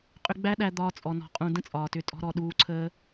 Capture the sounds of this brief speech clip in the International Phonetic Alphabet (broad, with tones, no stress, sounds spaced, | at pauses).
qʼ ʏ˧ ɡ͡b æ˦ ɗ æ˧ d̪ ɒː˧ t͡sʼ ɔ˨ n ɔ̤˨ qʼ ũ˨ d ə̃˦ t͡sʼ ɒː˨ t ʏ˧ tʼ ɔ̤˧ ɾ ɔ˨ ɗ uː˧ ǀʰ əː˧